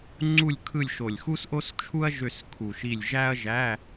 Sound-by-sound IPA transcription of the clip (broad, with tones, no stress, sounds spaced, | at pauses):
ŋ͡ǀ u˦˨ lʲ kʰ ɯ˦˨ lʲ ʃ o˨˩ lʲ x u˥ s ʔ o˥ s t͡ʃʰ u˥ ɐ̯ ʒ ø˦˨ s kʰ u˨˩ ʃ i˦˨ lʲ ʒ æ˥ ɐ̯ ʒ æ˧˥˧